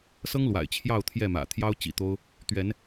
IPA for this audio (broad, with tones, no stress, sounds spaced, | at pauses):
s ɤ˦ ŋ l w a̰˨˩ ɪ̯ t͡ɕʰ j ɑ˥˨ ʊ̯ t̪ʰ j ɛ˥˨ m ä̰˨˩ t̪ʰ j ɑ˦ ʊ̯ t͡ɕ ḭ˨˩ t̪ o˦ ʊ̯ | t̪ ɥ ɛ˨˦ n